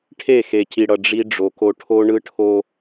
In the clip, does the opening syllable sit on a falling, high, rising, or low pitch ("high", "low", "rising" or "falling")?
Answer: falling